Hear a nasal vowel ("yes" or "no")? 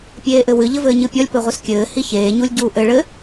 no